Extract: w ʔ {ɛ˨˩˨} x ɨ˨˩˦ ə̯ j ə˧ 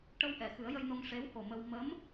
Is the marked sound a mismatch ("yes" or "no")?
no